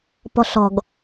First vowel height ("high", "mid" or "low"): mid